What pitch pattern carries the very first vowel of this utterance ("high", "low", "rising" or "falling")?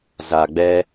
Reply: low